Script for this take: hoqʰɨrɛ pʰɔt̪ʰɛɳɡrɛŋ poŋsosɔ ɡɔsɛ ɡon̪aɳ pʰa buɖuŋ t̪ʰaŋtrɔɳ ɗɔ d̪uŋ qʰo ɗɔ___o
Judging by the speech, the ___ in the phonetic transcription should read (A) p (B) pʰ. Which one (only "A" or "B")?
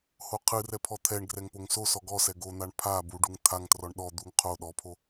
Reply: B